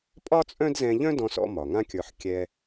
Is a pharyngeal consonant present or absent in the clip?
present